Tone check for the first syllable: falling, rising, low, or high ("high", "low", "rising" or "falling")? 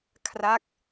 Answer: falling